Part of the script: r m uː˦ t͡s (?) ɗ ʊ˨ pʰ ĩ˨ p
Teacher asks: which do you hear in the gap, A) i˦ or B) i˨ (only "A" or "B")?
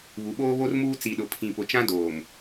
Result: B